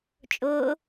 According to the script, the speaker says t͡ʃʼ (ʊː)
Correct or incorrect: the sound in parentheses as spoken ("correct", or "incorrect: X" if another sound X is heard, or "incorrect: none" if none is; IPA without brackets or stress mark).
correct